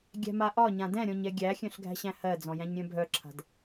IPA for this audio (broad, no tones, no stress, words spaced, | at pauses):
ɡʲæ̤maʔɒɲã dɛ̃ɾʲɔ̃ɲ ɛɡʲæxʲœ̃ɬ ɡʱæ̤ɕæ̃hɜd͡zɔ̃ jæ̃ɲɾʲœ̃bʱœǁʰa̤d